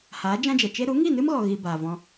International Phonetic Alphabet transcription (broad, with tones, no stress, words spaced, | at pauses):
haː˨˦ d͡ʒã˦d͡ʒɛ˨ t͡ʃe˦ ɾu˨˦ŋi˦˨nɨ˦mɣɔ˨ ɣi˧baː˨vɔ̃˧